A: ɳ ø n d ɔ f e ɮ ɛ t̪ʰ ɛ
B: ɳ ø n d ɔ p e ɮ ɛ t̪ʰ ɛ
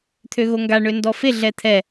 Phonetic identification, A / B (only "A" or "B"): A